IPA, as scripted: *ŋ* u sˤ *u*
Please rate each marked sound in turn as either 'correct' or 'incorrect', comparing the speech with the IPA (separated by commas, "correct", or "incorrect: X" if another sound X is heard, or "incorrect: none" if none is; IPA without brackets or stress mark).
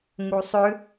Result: correct, incorrect: ʏ